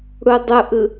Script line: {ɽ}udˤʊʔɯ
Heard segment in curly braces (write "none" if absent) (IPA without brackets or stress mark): ɽ